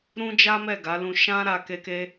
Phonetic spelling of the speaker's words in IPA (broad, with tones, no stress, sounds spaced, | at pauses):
ɾ ũ˦ d͡ʒ a˦ m ɛ˦˨ ɡ a˨˦ l ũ˧ ʃ ã˦ ɾ a˧ k e˦ k e˦